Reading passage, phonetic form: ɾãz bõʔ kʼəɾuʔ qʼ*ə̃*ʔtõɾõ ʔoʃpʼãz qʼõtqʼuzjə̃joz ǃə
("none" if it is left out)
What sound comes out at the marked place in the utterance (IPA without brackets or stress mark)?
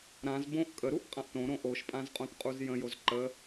ã